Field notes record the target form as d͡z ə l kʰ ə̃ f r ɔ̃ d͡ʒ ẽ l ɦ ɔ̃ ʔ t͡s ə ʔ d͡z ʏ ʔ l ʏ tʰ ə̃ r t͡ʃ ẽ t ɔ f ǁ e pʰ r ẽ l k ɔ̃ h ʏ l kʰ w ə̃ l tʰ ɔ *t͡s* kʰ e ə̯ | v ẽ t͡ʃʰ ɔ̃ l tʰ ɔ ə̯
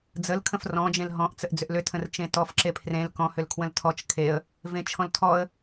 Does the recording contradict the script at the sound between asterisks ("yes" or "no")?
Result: yes